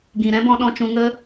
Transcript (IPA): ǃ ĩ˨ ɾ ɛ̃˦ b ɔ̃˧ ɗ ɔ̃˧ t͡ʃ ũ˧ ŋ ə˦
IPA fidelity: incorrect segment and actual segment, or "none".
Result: ǃ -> ɡ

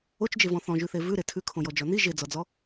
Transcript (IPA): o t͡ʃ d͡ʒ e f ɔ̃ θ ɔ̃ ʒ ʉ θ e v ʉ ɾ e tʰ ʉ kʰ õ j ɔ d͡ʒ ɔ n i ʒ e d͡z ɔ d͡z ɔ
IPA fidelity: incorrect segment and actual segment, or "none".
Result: f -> v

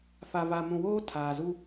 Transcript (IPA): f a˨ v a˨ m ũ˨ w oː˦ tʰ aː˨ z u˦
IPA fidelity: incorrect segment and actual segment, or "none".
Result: none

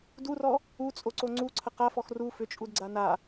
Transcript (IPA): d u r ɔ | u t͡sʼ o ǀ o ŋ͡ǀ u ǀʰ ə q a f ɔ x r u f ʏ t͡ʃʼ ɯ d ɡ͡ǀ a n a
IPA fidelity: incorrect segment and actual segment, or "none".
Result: ɯ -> u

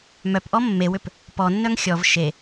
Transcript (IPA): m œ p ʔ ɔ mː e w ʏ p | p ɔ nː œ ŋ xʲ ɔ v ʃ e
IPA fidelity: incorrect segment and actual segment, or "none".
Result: none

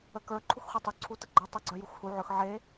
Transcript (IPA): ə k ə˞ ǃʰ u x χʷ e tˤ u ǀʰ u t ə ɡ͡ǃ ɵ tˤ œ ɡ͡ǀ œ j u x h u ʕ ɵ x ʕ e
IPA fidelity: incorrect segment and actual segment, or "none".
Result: none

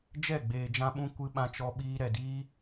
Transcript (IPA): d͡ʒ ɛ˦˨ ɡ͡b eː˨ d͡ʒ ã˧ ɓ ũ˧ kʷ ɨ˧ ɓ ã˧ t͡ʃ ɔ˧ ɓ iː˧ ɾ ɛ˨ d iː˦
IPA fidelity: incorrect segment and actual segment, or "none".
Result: none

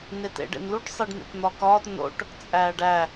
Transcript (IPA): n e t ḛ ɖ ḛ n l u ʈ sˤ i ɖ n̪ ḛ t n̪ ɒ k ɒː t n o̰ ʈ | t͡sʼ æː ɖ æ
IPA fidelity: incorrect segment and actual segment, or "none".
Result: none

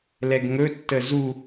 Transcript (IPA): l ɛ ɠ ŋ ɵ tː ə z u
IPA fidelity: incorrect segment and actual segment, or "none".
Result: ɠ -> ɡ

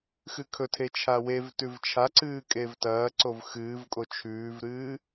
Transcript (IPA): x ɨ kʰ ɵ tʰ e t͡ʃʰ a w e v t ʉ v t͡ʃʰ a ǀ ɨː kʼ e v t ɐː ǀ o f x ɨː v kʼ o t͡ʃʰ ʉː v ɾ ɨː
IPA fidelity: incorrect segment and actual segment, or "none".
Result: f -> v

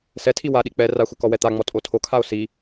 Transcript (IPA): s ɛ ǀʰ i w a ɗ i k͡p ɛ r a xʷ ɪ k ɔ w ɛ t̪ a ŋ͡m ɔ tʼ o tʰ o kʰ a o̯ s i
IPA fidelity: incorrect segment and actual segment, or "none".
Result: ǀʰ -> tʰ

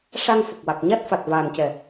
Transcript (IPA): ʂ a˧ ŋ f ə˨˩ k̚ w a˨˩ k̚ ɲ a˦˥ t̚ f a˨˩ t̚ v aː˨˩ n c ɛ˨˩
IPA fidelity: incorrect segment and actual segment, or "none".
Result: none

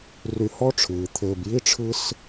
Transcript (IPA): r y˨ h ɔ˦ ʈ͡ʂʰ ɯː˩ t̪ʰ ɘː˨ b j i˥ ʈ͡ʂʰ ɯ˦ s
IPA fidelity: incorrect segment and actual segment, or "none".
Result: none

